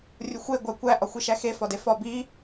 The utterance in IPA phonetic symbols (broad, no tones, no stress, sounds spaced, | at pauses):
rʲ u xʷ e ɡʷ æ kʷ æ ʔ ɒ xʷ i ʃ æ x e f ɒ d e f ɒ b i